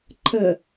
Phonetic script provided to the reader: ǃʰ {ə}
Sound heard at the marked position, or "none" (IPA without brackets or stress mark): ə